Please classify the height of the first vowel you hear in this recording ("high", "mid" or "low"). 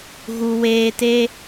high